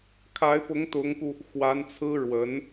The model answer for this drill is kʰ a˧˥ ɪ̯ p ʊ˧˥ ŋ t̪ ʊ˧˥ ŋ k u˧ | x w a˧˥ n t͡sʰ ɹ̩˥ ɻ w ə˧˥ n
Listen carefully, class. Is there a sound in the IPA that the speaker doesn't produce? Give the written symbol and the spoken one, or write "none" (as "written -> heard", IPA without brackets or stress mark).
none